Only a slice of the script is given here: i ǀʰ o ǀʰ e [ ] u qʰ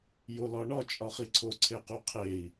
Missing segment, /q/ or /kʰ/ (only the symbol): q